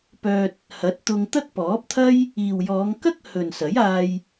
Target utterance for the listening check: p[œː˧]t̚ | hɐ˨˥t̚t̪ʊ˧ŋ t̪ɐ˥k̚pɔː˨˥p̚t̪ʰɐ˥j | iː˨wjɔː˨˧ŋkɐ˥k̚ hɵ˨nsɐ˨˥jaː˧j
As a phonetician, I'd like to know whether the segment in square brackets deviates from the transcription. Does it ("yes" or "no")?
no